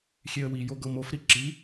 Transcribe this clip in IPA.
xʲ e ə̯ w i j o ɡ ɤ m o f ɾ i ǁ i

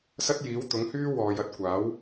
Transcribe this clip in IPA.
s ɐ˥ t̚ j iː˨˥ w t̪ ʊ˨˥ ŋ h yː˥ w ɔː˨ j ɐ˥ t̚ kʷ aː˨˥ w

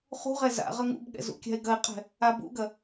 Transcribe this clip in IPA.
χ ṳ ʁ ɛ z a̰ ʁ ɐ ŋ ṵ b ɠ ɛ̰ z ṵ kʲ a̤ ɪ̯ ɡ ɐ ɪ̯ qʼ ɛ̤ | a b ṵ ɡ ɐ

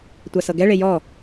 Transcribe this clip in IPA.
tʷ a s ɤ ɡ ɛ ɭ e j ɔ

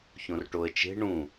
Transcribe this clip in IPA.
ç õ r ʈ o ə̯ t͡ʃ e̤ ɳ ũ

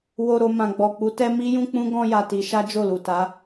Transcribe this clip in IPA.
w o˨ ɾ o˨ m ã˨ ɡ͡b ɔ˨ k͡p u˨˦ t ɛ˦ m i˦ j ũ˦ k͡p ũ˦ ɡ ɔ̃˧ j a˨ t i˨˦ ʃ a˦ d͡ʒ o˦˨ l u˨ t a˨˦

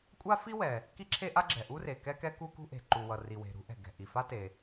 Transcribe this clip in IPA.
kʷʼ a˥ f i˥ w ɛ˩ | k i˥ ǁʰ e˥ ʔ a˥ ɡ͡ǁ ɛ˩ ʔ u˥ r e˩ k ɛ˥ k ɛ˥ k u˥ k ṳ˥ ʔ e̤˩ ǃ u˩ w ʌ˩ r i˩ w e̤˩ ɾ ṳ˥ ʔ ɛ̤˩ ɡ ɛ̤˩ ʔ i˩ f a˥ t e˩

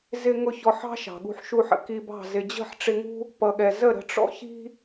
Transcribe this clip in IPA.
z ɪ˦ ŋ ʊ˦˨ ç ɔ˧ ħ ɑ̤˦ ʃ ɑ̤˨ ɠ ṳ˧ ħ ʃ u˧ ħ ə̰˨ k i˧ b ɑ̤˦˨ z ɪ˨ d͡ʑ ə̤˦˨ ħ ʈ͡ʂ ɪ˧ ŋ ṳ˦ | p ʌ˨ ɠ ɛ˨ z ə˦˨ ɾ ə̤˧ ʈ͡ʂ ɔ̰˦ ç i̤˦

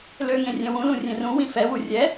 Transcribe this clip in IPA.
l ø ŋ ẽ rʲ ɛ̃ w ũ l ũ rʲ ẽ r ũ w ĩ f ɛ w u rʲ ɛ

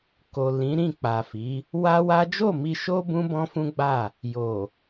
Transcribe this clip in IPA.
k o˨ l ĩ˨˦ ɾ ĩ˦˨ k͡p a˨ f i˨˦ | w a˦ w a˦ d͡ʒ o˦˨ m i˧ ʃ o˦ b ũ˦ b ɔ̃˦ f ũ˦ ɡ͡b a˦˨ | j o˨

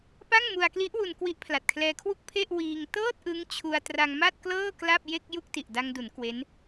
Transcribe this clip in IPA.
p a˥˩ ŋ m u˧ a̯ k l i˦˥ ʔ w u˧ n k w i˦˥ ʔ pʰ l a˨˩ t̚ kʰ l ɛː˧ kʰ w u˥˩ k̚ pʰ e˥˩ ʔ w iː˧ ŋ t ɤː˥˩ t̚ ʔ ɯ˦˥ ŋ t͡ɕʰ u˧ a̯ t r a˧ ŋ m a˥˩ t̚ k l ɤː˥˩ k l a˥˩ p̚ j e˥˩ k̚ j u˥˩ k̚ t i˨˩ ʔ d a˧ ŋ d u˩˦ n k w e˦˥ n

